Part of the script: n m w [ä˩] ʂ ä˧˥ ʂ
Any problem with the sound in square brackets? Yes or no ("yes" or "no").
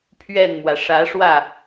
no